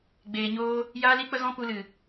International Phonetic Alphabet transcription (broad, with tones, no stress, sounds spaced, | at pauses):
ɡ͡b eː˧ ɲ oː˦ | j aː˦ l i˦ k͡p ə˦ ɣ ɔ̃˦ p u˧ l ɨ˨